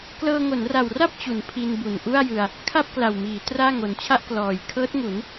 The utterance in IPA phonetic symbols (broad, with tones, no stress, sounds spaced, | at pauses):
k l ɤː˧ ŋ o˩˦ n r a˨˩ w r a˥˩ p̚ t͡ɕ u˩˦ n pʰ i˧ n b u˨˩ n ʔ u˥˩ a̯ j ɯ˧ a̯ | kʰ a˥˩ p̚ k l a˨˩ w m iː˩˦ t r aː˥˩ ŋ o˨˩ n t͡ɕʰ a˥˩ ʔ k l ɔː˨˩ j kʰ ɤː˦˥ t̚ ŋ u˩˦ n